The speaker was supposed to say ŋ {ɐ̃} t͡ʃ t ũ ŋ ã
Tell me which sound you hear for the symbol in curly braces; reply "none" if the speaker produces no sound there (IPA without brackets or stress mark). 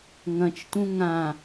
ɐ̃